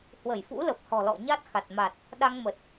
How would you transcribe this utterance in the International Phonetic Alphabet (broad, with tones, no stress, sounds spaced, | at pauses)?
h w ə˧˩ j f ṵ˧˥ l ə˨˩ p̚ h ɔ̤˨˩ l ɔ̰˧˨ ɲ a˦˥ t̚ x a˨˩ t̚ m a˨˩ t̚ | ɗ a˧ ŋ m ə˨˩ t̚